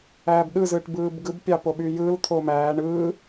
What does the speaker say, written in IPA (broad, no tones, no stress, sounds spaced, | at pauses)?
æː b ɗ ɯ z ɯː ʈ b ɯː b ɡ ɯ b pʲ ɑ p o ɓ y j ɯ l t̪ʰ o m æː ɳ ɯː